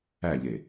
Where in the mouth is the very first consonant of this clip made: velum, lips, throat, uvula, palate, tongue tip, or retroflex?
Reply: palate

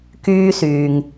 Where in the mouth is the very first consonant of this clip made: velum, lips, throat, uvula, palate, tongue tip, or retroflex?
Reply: velum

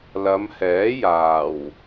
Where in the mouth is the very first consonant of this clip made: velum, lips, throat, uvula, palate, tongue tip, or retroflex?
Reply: tongue tip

